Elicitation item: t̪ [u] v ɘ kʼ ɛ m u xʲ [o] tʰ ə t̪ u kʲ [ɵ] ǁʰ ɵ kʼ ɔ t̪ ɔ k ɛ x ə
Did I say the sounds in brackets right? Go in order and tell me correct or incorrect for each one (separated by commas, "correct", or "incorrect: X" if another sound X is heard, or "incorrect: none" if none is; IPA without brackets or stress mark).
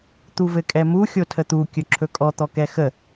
correct, correct, correct